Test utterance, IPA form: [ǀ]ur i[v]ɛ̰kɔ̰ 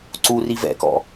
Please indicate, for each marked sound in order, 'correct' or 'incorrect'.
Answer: correct, correct

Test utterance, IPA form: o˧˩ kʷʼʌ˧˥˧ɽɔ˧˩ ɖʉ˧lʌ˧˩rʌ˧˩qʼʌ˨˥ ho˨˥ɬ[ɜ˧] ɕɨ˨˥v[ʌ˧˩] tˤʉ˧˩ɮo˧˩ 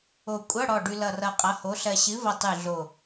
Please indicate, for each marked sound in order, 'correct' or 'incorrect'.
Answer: correct, correct

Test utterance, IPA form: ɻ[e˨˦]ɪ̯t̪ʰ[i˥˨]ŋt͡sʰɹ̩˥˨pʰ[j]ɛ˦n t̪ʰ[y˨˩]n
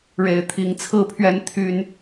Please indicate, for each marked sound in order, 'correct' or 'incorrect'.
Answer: correct, incorrect, incorrect, incorrect

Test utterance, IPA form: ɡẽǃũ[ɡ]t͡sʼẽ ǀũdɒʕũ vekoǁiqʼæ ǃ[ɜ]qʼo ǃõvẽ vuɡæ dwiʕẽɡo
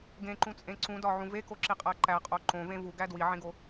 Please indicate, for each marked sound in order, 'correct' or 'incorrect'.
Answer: incorrect, incorrect

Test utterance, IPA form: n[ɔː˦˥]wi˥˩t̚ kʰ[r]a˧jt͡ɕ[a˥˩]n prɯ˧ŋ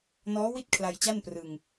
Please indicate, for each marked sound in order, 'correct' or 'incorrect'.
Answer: correct, incorrect, correct

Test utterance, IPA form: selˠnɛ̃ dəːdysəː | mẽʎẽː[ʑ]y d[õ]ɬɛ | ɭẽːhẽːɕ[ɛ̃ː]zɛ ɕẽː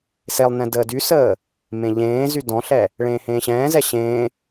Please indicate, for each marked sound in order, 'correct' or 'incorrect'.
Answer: incorrect, incorrect, correct

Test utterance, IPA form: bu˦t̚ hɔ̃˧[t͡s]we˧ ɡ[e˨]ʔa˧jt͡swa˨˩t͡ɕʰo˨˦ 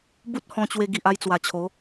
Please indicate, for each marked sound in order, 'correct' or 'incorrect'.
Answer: incorrect, incorrect

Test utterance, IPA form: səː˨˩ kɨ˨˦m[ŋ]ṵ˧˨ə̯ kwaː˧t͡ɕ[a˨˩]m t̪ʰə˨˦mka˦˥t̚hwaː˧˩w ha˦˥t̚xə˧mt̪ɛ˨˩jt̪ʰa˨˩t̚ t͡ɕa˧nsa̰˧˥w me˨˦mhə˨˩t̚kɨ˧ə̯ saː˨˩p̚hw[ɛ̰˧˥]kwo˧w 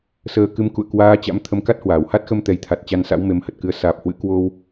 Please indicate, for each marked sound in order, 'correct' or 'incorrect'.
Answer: incorrect, incorrect, incorrect

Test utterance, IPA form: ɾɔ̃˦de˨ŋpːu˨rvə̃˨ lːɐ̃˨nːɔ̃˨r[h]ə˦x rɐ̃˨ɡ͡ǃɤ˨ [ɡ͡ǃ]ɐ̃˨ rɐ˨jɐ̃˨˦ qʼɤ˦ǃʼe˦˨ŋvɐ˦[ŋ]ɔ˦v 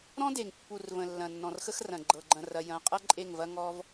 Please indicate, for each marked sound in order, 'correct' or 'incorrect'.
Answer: incorrect, correct, correct

